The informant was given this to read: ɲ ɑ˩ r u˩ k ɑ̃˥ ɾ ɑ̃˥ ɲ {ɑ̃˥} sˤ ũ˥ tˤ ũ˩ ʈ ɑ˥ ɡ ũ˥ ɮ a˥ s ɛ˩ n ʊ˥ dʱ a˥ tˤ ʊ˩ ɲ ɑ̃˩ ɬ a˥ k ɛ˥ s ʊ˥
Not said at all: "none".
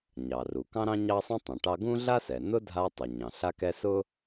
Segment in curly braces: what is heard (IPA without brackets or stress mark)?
ɑ˥